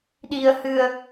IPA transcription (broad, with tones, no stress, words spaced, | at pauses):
ɗi˧ə̯hɨ˧ə̯